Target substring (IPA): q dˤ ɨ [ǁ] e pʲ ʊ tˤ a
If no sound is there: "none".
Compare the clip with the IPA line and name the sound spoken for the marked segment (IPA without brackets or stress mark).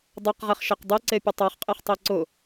ǀ